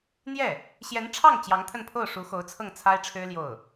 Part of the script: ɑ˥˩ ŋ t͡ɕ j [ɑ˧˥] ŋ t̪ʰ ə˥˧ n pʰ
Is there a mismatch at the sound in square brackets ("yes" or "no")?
no